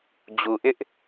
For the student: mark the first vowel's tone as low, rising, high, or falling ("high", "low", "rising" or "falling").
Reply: low